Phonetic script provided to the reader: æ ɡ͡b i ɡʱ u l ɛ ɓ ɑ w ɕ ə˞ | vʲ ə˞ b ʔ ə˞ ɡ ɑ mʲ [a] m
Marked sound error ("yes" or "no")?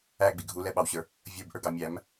yes